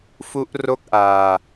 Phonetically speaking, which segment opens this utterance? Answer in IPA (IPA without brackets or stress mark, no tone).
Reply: f